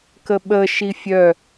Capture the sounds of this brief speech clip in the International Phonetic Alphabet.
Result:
kəɓə ʃifʲœ

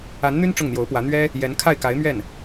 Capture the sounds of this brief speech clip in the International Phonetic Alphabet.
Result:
a˧˥nn̪y˥n ʈ͡ʂʊ˥˩ŋn̪jo˧˥ʊ̯pwä˧˥ n̪ɥɛ˥ | jɛ˧˥n kʰa˥˩ɪ̯ka˧˥ɪ̯mɥɛ˥˩n

